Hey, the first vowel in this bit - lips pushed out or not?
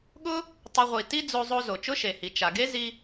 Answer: yes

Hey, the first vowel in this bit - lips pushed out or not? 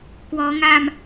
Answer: yes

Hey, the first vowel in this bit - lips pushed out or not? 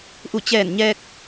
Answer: yes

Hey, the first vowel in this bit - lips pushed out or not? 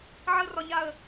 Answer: no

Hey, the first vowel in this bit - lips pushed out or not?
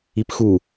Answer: no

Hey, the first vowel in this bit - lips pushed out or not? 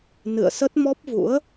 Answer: no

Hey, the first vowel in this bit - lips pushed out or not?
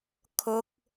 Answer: yes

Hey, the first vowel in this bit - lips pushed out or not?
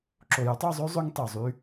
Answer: yes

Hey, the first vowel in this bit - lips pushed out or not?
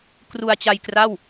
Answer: yes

